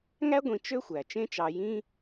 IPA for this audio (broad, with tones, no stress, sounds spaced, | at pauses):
ŋ æ˦ ɡʷ ĩ˨ t͡ʃ ø˥ xʷ æ˩ t͡ʃ ẽ˦ t͡ʃ ɑ˨ j ĩ˦